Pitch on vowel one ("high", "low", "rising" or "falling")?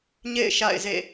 falling